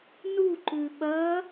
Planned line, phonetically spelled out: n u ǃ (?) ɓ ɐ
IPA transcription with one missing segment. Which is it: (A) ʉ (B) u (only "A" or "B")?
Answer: A